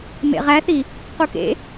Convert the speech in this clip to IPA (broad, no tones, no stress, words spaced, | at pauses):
mḛʁæθi | qukḛ